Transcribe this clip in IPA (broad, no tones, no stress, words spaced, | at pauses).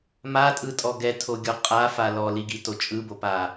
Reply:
matʼɯtʼɔ ɡɛtʰoɡʲɔ qʼafa lɔliɡito t͡ʃʼɯbopa